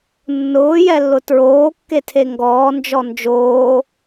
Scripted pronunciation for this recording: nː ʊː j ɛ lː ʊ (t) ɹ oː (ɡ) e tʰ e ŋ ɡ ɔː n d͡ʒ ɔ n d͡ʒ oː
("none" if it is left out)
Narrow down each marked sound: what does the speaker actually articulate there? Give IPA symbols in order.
t, kː

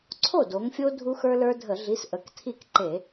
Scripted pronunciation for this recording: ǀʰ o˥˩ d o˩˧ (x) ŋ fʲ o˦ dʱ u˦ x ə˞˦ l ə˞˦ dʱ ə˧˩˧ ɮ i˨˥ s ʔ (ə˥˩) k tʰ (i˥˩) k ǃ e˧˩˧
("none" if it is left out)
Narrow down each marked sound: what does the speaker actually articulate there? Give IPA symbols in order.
none, ə˩˧˩, i˥˩

